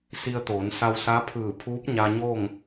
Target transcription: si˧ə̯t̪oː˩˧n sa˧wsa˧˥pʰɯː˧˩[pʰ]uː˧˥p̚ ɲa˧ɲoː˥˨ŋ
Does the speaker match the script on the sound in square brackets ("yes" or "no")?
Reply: yes